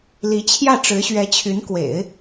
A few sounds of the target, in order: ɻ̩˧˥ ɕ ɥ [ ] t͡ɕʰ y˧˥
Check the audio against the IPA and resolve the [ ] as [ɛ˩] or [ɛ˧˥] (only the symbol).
ɛ˧˥